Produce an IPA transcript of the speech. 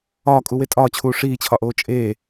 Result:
ɒːkʼuwe tʼɒːt͡ɕʰuː ʂiːt͡ɕʰɒʔoː t͡ʃʼeː

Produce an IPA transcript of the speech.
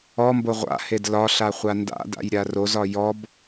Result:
ɔmbo ʁʷa̰hed lɒɬa χʷanda̰da̰j ɾʲarozɒ jɔb

